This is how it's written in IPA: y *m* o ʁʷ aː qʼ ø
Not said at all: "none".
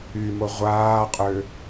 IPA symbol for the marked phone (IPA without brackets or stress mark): m